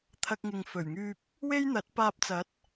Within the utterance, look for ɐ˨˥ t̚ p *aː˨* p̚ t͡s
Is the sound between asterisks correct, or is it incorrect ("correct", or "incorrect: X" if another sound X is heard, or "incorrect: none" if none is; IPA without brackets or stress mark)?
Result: incorrect: aː˧